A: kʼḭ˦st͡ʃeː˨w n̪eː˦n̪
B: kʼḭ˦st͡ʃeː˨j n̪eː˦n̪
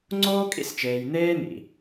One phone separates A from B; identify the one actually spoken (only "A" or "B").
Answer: B